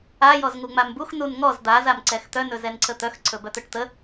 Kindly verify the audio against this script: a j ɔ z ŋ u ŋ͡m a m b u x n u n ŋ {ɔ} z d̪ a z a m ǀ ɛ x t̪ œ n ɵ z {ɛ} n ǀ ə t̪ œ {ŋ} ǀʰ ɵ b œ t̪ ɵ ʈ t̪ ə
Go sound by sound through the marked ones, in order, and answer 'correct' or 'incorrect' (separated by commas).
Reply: correct, correct, incorrect